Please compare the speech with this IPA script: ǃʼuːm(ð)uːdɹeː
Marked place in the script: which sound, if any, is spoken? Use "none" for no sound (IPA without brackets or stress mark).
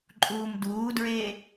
d